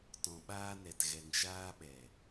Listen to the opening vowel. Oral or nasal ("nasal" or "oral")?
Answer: nasal